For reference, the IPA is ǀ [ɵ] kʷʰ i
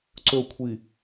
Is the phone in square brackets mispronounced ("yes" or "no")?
no